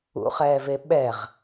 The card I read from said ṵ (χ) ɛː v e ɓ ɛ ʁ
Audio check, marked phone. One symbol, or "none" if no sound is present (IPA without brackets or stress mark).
χ